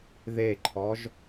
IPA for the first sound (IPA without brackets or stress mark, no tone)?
ð